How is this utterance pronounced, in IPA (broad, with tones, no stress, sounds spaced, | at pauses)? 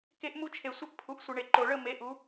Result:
k e˦ ʔ m u˦ t͡ʃʰ e˨ sʷ ə˦ ʔ pʰ u˨ ʔ sʷ ə˨ ɳ e˨ ǃ o˨ ɭ ə˦˨ m e˨˦ ʔ u˨˦